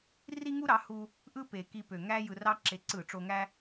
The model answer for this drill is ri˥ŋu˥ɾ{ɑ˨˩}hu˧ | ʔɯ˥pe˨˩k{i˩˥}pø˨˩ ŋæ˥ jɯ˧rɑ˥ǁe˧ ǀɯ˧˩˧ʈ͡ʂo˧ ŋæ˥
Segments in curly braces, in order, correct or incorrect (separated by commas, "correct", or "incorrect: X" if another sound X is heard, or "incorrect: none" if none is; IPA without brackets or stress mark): incorrect: ɑ˩˥, incorrect: i˧